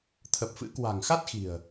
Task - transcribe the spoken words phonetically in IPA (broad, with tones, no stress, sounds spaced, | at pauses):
t̪ʰ ə˨˩ p̚ f ɨ̰˧˥ k w a̤˨˩ ŋ x a˦˥ t̚ x i̤˨˩ ə̯